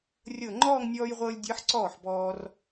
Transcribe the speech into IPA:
rʲ ɤ˧˩ ŋ͡ǃ ɔː˥˧ ŋ nʲ ɔː˧ j ʁʷ ɤː˧ lʲ dʲ ɤ˧˥ ħ ǀ ɔː˥˩ ħ b ɔː˧ r

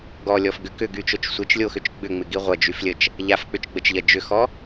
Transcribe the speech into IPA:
ɡ ɔ lʲ ɔ f ɡ ʏ k ʏ ɡ y t͡ʃ o t͡ʃ sʷ ɪ t͡ʃ lʲ o x ʏ t͡ʃ ɡ͡b ʏ ŋ͡m ɪ ɡ i ʁʷ ɐ d͡ʒ y f lʲ ə t͡ʃ | ʎ a f k͡p ʏ t͡ʃ ɡ͡b ə t͡ʃ ʎ ɐ d͡ʒ ʏ x ɔ

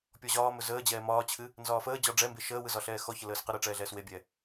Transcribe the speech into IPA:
pʲ ɔ ʑ ɒː m ɵ z əː d͡ʑ ɛː m ɒː t͡ɕʰ ɨ | n z ɒː f əː d͡ʑ ɒ ɖ͡ʐ ɛ m b e ʃ əː w ɯ z ɒ ɬ ɛː x ɔ ç ə l əː s q ə ɾ ɯ ʈ͡ʂ ɛː ɮ ɛː s w e bʲ ɛ

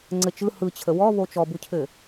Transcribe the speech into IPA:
ŋ͡ǀ ɘ t͡ʃ ɯ h ɯ t͡ɕʰ ə w ɔ β o t͡ʃ ɔ b u cʰ ɘ

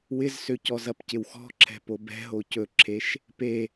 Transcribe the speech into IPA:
w ɪ z s ø c ɔ z ɐ p c ɪ w x ɔ̤ ǁʰ ɛ̤ p o b ɛ̤ ɦ o c ɵ ǁʰ e ʃ | p e

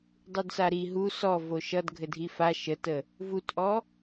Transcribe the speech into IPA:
dˤ u d s a ɾ i ɦ u s ɔ v o ʃ ʌ d ɡʱ ɘ dʱ i f a ʃ ə t ə | v u t ʔ ɔ

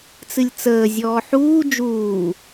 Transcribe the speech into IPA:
t͡s ɨ lʲ t͡s əː zʲ ɔː ħ uː d͡ʒ uː

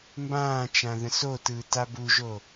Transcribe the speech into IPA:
m b ãː t͡ʃ ã ð ə̃ s o t ɯː t a b u ʒ o

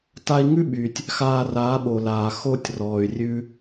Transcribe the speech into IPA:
t a˧ i̯ ŋ ʉ˦ ɓ y˨ tʲ | x aː˧ r aː˨˦ ɓ o˨ l aː˨ x o˧ tʲ r ɔː˨ y̯ rʲ ʉ˦

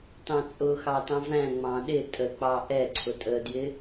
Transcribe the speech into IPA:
t ɑ̃ t͡sʼ ʊ x ɑ t ɑ̃ v æ̃ ŋ͡m ɑ̃ ɗ ɪ tʼ ə k͡p ɑ ʔ ɛ ǀʰ ʊ tʼ ə d j ɪ

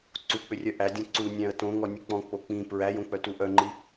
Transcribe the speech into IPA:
ǀ u k͡p ʏ rʲ œ ʔ æ dʲ ɔ̃ ǀ u nʲ æ̃ ə̯ t õ ŋ ɔ nʲ u k͡p ɔ̃ k͡p o k͡p ĩ p ɹ æ j õ k͡p œ t u ʔ œ ŋ͡ǃ i

